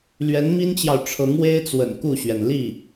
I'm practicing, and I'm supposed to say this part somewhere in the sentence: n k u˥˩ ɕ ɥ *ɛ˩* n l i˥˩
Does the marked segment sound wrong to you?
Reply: no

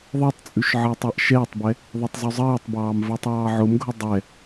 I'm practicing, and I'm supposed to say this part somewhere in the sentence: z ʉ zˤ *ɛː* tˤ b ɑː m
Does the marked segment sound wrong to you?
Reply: yes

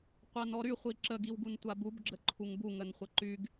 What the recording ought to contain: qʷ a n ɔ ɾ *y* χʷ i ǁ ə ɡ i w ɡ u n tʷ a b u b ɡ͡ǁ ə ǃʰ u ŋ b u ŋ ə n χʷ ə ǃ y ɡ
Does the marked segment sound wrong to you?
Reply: no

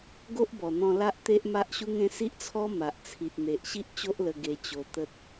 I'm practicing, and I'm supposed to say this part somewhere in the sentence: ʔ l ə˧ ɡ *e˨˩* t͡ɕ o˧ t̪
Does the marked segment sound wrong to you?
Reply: yes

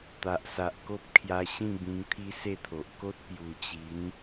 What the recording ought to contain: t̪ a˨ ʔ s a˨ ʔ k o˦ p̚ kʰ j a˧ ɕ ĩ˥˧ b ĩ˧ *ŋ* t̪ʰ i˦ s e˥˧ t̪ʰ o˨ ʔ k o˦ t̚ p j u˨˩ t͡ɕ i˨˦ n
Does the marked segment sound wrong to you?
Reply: no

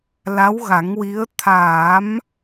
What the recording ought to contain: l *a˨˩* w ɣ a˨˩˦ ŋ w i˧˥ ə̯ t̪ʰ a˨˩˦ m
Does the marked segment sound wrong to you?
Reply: yes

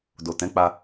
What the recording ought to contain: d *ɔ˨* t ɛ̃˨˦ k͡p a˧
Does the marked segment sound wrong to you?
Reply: yes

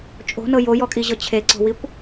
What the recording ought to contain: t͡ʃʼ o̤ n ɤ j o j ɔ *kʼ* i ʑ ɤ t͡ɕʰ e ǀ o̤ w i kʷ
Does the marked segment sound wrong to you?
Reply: no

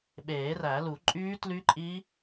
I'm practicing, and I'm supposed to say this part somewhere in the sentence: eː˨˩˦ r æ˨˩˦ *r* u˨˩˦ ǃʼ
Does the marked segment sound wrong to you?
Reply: yes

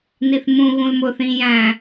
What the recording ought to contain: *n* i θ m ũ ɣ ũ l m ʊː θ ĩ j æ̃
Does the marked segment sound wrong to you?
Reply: no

